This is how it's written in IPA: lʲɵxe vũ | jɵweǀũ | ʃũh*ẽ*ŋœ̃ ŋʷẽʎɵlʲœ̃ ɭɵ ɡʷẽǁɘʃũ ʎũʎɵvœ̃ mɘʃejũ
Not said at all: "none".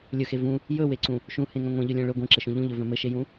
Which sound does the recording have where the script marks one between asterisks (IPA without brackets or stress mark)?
ẽ